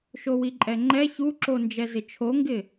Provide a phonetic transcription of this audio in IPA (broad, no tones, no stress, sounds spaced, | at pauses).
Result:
ʃ o w i ǃʼ ɛ ŋ͡ǃ ɛ ç u ǁ o n d͡ʒ ɛ z ɪ t͡ʃʰ o ŋ ɡ ɪ